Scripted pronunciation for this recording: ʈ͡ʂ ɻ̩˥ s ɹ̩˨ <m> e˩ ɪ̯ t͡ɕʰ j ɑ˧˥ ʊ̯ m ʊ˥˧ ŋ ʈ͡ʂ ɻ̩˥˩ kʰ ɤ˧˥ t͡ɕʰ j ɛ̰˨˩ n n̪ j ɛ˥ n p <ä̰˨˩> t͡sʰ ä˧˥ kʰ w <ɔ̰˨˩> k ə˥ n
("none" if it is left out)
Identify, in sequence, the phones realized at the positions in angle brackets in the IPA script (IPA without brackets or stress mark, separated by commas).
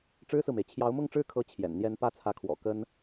m, ä˥˩, ɔ̰˨˩